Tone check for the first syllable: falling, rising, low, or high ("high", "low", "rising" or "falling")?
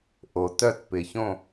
low